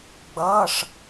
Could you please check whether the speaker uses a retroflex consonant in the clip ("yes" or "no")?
yes